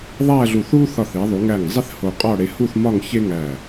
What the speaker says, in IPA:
ðˤæ˥˧ɮu˧˩θ u˥ θɒ˧˩θi˩˧ðˤu˩˧ŋæ˧˩ŋ zˤi˥θ ho˧qʼɒ˥˧ ɽe˧hu˥˧θmɒ˥˧ŋ çe˥ŋæ˧˩

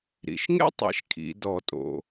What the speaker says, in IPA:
ɾḭ˩ʃ ŋḛ˥tˤḭ˩˧ʃ kʰḭ˩˧dɔ˧˩˧tʼo̰˩

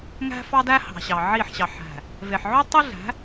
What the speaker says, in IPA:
ŋæ̤˦fɑ˦ dæ˦hɑ̤˨ɕɑ˨ ʕi˦˨ħɕɑ˨ ħæ̤˨ | ve˨ħʕø˦tˤi˦ɮæ̤˨˦

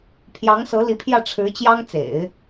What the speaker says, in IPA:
pʰjɑ˧˥ŋsɤ˧˥li˧˥pʰjä˥˩ ʈ͡ʂʰɻ̩˧˥t͡ɕjɑ˥ŋ t͡sḛ˨˩˦ɪ̯

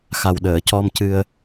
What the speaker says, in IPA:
xa˨˩wɗəː˨˩˨cɔ˧mcɨ˧ə̯

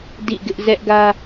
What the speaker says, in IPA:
dḭ˦˨ɡɪ˦ʔ zɛ˦ʔɡä˦

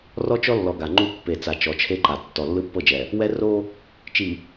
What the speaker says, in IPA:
rɔ˦t͡ʃɔ˦lːɔ˨ ɡa˨ŋ͡ǃu˦ pːe˨ t͡sa˨t͡ʃɔ˨t͡ʃʰe˦ǃa˨ tːɔ˨lːɯ˦pːɤ˦˨d͡ʒɛ˨ | wɛ˦ ro˦ | t͡ʃi˨

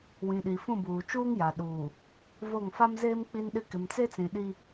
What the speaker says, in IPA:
wĩ˨ɗi˨fũ˦˨buː˨ t͡ʃuː˦ŋja˨ ɗuː˨ | vo˦˨ŋ fa˦mzeː˦m k͡pi˦nɗɪ˦ kɪ˨mt͡se˦t͡sĩ˨ ɗi˦

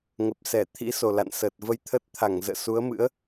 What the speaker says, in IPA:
ŋə˨˩p̚sɛ˧˩t̪ʰḭ˧˥so˨˩ la̰˧˨nsəː˨˩t̚ və˧jt̪ʰə˦˥t̚ t̪ʰa˧˩ŋ zə̰ː˧˨su˨˦ə̯ mɨ̰˧˥ə̯

